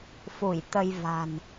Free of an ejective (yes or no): yes